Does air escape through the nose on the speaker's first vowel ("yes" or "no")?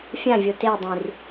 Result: yes